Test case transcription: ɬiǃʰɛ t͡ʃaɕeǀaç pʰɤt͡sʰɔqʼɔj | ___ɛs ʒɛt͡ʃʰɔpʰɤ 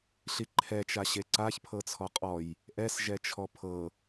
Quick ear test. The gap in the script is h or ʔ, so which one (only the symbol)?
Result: ʔ